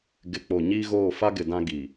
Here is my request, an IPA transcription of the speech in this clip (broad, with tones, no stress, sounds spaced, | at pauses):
ɡ ɪ˨ k͡p o˨ ɲ iː˦ ɣ oː˦˨ f a˦ ɡ ɪ˨ d ã˦ ɡ iː˨